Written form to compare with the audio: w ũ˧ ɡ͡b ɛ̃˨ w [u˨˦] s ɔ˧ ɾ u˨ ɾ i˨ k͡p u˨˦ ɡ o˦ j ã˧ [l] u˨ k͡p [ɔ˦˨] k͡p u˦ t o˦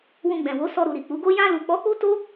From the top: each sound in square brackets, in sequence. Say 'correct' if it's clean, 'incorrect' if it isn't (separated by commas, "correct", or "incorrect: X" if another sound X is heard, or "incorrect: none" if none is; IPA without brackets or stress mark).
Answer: incorrect: o˨˦, correct, incorrect: ɔ˨˦